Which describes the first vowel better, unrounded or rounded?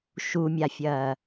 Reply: rounded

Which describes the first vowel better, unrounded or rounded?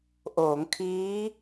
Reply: rounded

